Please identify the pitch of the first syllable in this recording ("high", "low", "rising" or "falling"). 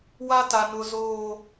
high